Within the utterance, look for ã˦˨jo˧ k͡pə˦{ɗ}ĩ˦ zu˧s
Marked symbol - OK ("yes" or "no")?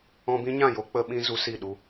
no